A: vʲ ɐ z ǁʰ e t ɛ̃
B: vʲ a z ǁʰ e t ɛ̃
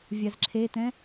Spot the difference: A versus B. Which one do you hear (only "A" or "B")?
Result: B